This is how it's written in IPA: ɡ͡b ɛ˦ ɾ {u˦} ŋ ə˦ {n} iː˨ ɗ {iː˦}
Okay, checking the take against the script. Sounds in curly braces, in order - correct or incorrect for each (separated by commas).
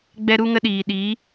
correct, incorrect, incorrect